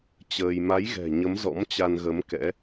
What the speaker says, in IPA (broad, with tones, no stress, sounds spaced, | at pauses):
t͡ɕ əː˧ j m a˨˦ j ɣ ɛ̤˨˩ ɲ ə˨˦ m z ɔ̰˧˥ m t͡ɕ a˧ n ɣ ə˨˦ m k ɛ̰˧˥